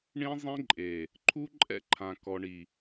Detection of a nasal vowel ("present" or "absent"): present